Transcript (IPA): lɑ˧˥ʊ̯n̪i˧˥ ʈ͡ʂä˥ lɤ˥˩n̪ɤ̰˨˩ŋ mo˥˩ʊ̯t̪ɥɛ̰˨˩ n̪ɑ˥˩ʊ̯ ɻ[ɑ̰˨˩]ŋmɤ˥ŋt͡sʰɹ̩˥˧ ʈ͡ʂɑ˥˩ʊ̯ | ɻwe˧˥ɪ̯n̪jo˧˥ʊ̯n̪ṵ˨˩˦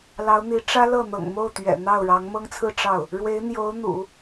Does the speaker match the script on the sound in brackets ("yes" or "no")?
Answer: no